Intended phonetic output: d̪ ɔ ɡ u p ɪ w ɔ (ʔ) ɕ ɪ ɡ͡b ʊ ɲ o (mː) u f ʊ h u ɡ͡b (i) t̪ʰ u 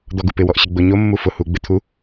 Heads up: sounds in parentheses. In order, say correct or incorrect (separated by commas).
correct, correct, incorrect